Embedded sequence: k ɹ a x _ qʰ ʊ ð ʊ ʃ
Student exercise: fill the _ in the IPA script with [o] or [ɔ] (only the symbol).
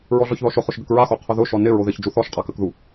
o